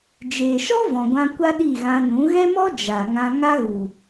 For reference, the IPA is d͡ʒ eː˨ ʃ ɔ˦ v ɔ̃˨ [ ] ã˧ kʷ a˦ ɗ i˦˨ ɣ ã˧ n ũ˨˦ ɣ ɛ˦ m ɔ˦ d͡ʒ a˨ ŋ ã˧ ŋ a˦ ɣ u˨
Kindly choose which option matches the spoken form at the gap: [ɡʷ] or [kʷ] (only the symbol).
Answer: ɡʷ